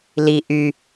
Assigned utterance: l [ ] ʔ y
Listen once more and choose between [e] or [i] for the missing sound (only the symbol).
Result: i